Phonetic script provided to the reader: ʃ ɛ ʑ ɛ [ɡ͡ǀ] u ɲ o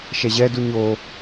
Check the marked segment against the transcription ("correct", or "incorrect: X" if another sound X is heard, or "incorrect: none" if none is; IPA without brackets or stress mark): incorrect: d